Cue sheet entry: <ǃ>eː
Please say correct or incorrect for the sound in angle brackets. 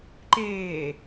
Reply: correct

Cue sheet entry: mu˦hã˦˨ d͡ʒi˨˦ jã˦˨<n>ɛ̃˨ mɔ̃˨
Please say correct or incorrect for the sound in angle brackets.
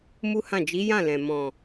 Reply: incorrect: l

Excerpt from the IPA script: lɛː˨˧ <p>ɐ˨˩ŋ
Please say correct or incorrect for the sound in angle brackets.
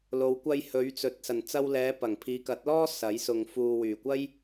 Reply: correct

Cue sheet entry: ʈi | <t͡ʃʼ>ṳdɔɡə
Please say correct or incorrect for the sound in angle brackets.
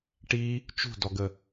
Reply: incorrect: t͡ʃ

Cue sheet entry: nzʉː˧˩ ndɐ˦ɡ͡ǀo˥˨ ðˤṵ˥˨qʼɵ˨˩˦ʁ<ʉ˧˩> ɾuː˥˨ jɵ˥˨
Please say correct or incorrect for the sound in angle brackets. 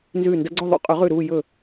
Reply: correct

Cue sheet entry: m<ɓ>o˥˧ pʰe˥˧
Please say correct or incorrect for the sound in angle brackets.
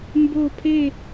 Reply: incorrect: b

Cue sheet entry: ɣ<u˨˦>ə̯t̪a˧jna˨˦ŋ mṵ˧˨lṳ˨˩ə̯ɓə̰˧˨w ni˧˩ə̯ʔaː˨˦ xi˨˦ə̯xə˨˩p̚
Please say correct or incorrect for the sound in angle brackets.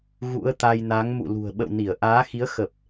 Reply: incorrect: ṵ˧˥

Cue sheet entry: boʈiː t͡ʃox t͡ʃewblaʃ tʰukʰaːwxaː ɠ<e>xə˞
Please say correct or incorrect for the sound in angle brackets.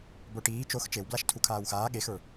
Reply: correct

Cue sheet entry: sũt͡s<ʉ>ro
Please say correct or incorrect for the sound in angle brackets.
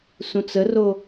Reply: incorrect: ə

